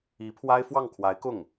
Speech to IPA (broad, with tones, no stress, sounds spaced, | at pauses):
i˧˥ pʰ w a˥ ɪ̯ f w ɑ˥˩ ŋ kʰ w a˧˥ ɪ̯ k ʊ˥˩ ŋ